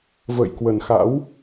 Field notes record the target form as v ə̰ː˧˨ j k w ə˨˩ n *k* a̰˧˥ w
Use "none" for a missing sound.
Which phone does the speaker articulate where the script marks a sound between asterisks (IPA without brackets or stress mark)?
x